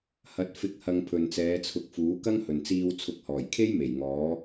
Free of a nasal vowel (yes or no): yes